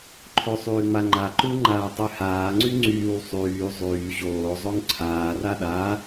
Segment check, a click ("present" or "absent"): present